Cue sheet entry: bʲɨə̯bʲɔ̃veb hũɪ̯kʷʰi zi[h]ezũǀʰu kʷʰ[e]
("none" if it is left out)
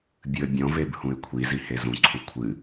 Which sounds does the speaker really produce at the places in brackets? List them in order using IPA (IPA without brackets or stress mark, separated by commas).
h, ɨ